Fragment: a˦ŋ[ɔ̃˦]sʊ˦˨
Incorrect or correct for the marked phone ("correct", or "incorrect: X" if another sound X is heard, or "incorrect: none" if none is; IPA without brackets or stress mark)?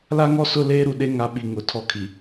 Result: incorrect: ɔ˦